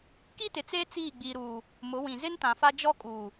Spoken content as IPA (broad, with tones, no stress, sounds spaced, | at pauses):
k i˦ t ɪ˨ t͡s eː˦ t͡s iː˦˨ ɡ͡b iː˨ ɾ uː˨ | m ʊ˨˦ w ĩ˨ z ɪ˦ n t ã˨ f a˦ d͡ʒ ɔ˦ kʼ uː˨